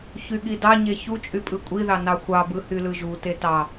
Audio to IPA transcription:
çyɠidɑɲe çu t͡ʃʼypʼɯkʷʼiðɑ nɑxʷɑbɯ hylɯʒute tɑ

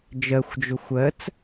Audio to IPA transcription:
d͡ʒɜxʷd͡ʒʊ xʷɜt͡s

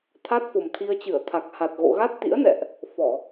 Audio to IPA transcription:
t̪ʰa˦˥t̚fo˨˩mt̪ʰi˧ə̯t͡ɕɨ˧˩ə̯ t̪ʰa˨˩k̚ha˨˩t̚ɣo̰˧˨ ɣa˦˥t̚t̪ḭ˧˥ə̯nɛ̰˧˨ʔ | fɔ˧˩˨

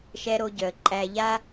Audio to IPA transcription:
ʃɛ˦ɾo˦ɟœ˧ə̯ ǃʼæ˧ʎa˦

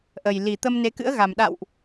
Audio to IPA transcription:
ʔə˨˩j li˨˩ t̪ə˧m ne˨˦kɨ̰˧˥ə̯ ɣa˨˩m ɗa̰˧˨wʔ

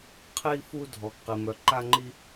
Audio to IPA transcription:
qʰi˧fu˧ dʱɔ˩ɡqi˩ mœ˩ǃa˧ŋ͡ǃi˧

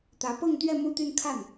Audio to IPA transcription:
t̪ä˧˥pɤ˥˧ŋt̪ɥɛ˥˧ mu˥˧t̪y˥˧nkʰa˥˩n

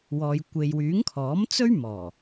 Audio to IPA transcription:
wɔː˨jkʷe˨jwyː˨˥ŋ kʰɔː˨˥mt͡sɵ˥ɥmɔː˨˩

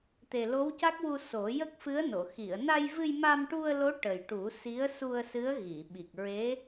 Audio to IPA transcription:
t̪e˨˩lo˧˥wca˦˥k̚wu˧ so˨˩˦ jə˦˥k̚fɨ˧˥ə̯no˨˩˨ xi˨˩˨ə̯na˧jvɨ˧j ma˧mʈu˧ə̯lo˧˥ ʈə˨˩jʈu˨˩˦ si˧˥ə̯su˧ə̯sɨ˧˥ə̯ ɣi˨˩˨ɓi˨˩k̚ ɹe˧˥

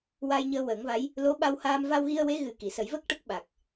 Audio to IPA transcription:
wa˧jɲəː˧wəː˨˩˦ŋva˧˥j | lo˧˥ɓa˧whaː˧m va˧wɣi˧ə̯we˧˥ ɣɨ˨˩ ki˨˩˨sə˨˩˦j və˦˥k̚ ʈə˦˥k̚ɓa˨˩k̚

